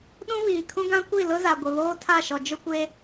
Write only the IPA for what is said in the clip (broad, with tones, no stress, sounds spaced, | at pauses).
ɗ ũ˦ β iː˨ kʰ ũ˦ ɡ ã˦ kʷ i˦˨ l ʊ˦ z a˨ ɡʷ ɪ˨ β oː˦ tʰ a˦˨ ʃ ɔ˨ d͡ʒ ʊ˦ kʷ e˦